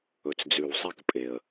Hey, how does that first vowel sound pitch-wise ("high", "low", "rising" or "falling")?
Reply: low